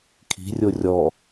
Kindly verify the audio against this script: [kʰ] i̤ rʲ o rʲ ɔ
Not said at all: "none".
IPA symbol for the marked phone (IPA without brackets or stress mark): kʰ